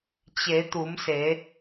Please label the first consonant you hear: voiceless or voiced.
voiceless